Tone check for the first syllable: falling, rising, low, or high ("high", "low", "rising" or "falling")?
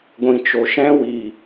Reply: low